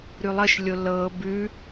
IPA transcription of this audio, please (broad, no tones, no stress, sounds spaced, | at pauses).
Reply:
ɾ ʉ lˠ ə ʃ lʲ o l ɤ b ʉ